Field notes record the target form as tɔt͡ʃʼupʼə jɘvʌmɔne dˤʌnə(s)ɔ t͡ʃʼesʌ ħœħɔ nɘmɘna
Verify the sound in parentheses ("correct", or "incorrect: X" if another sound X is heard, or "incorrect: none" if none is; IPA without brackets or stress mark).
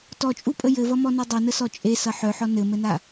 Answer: correct